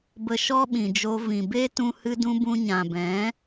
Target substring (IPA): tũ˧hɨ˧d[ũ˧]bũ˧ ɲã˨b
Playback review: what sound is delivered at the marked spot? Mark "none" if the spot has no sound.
ũ˧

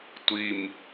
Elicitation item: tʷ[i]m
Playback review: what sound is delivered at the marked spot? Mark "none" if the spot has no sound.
i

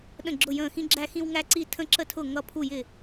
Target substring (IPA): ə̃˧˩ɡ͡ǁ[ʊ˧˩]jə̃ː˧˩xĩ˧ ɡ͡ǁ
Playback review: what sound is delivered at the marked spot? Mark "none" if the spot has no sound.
ʊ˧˩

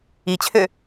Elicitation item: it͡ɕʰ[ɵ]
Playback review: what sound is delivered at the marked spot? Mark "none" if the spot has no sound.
ø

